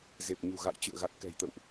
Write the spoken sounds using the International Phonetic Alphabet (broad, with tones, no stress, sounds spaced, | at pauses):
z e˨˩ p̚ ɲ ṳ˨˩ ɣ a̰˧˨ j t͡ɕ ɨ̰˧˨ ə̯ ɣ a˨˩ t̚ k ɛ̤˨˩ j t̪ ə̰˧˨ w ʔ